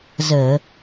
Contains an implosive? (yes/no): no